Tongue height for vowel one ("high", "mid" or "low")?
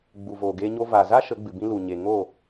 high